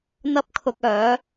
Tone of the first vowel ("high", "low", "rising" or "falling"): high